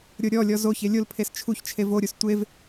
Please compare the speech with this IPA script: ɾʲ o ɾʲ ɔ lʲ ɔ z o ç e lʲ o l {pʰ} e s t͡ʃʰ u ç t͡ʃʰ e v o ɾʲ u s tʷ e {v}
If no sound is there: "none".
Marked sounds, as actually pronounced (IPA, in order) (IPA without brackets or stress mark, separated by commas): pʰ, v